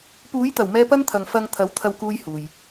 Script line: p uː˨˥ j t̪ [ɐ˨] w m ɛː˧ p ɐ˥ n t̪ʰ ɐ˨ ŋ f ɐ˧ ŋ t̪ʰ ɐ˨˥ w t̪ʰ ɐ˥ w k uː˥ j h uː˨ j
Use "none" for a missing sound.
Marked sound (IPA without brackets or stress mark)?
ɐ˨˩